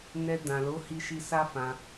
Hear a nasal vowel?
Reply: yes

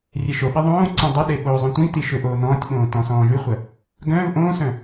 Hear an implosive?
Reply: yes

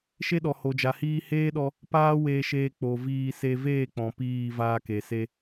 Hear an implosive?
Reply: yes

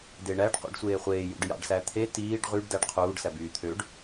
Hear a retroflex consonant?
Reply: yes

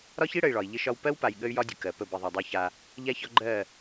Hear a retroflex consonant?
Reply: yes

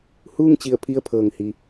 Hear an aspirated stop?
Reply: yes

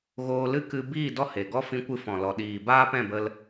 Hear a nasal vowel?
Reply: yes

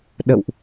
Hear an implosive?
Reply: yes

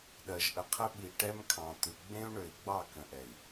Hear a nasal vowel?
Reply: yes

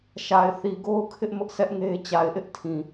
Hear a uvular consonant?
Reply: no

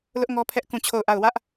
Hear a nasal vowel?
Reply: yes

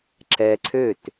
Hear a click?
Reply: yes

